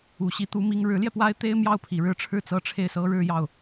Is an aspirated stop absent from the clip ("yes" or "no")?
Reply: no